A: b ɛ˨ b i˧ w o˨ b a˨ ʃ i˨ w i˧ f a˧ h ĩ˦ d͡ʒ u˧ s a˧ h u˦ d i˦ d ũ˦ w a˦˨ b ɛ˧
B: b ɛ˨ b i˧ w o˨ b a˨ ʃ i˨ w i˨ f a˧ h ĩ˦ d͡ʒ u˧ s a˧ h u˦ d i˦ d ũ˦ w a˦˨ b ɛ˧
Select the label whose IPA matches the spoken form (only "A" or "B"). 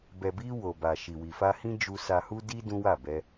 B